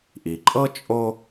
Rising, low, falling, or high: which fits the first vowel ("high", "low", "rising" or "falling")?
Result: low